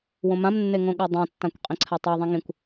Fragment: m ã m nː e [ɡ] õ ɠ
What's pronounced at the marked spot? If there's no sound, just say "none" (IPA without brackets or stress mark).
ŋ